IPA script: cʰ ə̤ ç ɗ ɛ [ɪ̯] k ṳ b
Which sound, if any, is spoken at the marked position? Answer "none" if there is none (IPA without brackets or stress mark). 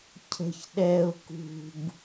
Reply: ʊ̯